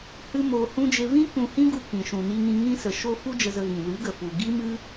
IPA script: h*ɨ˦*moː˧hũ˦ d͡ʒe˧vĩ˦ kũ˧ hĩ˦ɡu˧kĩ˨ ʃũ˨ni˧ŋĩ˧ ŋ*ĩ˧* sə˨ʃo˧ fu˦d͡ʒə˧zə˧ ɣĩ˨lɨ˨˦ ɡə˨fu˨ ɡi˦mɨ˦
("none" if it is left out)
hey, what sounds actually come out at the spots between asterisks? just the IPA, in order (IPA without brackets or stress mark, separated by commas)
ɨ˦, ĩ˧